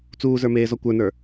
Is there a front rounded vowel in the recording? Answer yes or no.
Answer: no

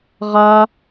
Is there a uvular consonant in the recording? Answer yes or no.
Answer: yes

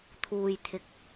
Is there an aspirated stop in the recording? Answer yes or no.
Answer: yes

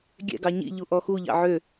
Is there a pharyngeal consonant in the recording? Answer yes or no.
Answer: yes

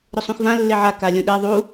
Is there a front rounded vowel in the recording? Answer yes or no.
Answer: yes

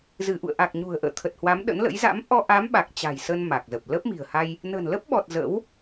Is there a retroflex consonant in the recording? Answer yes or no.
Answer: no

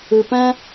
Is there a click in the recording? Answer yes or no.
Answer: no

